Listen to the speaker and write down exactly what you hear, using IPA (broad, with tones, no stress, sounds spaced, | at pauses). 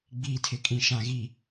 ɡ͡b iː˨ tʰ ɪ˨ kʼ ĩ˨ ʃ ã˨ ɣ i˨